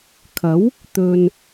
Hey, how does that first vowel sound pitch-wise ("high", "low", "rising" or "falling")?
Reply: rising